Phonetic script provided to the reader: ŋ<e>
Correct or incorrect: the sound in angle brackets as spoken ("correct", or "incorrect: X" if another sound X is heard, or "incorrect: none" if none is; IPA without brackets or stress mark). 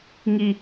incorrect: i